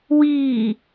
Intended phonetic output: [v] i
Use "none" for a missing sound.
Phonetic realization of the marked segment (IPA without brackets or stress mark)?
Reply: w